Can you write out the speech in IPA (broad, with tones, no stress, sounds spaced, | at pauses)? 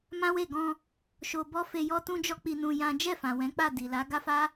m ã˦ w e˦˨ ɡ ɔ̃˧ | ʃ o˧ b ɔ˦ f e˧ j ɔ˦ t ũ˦ d͡ʒ ɔ˦ k͡p i˧ n ũ˧ j ã˦ d͡ʒ ɛ˦˨ f ã˨ w ɛ̃˨˦ k͡p a˦˨ d i˨ l a˨˦ ɡ a˦ f a˦